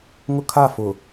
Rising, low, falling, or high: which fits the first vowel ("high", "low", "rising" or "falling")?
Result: high